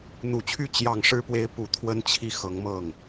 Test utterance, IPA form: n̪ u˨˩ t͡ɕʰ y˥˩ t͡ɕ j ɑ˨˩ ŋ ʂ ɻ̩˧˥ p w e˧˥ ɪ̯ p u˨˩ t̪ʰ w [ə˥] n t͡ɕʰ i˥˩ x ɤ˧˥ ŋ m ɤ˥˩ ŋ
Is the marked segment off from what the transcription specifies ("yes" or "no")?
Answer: no